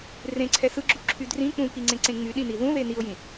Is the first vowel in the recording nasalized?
yes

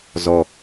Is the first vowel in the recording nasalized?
no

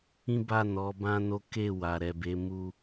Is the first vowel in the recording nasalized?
yes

